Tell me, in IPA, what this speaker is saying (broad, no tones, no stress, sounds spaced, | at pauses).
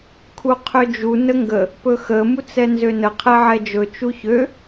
kʰ u qʰ ø d͡ʒ u n ə ŋ ɡ ə | p ɵ x ə m u t͡s ɛ n z ø n ə qʰ ɛ ʕ ɛ d͡ʒ ɵ t͡ʃ u ç ø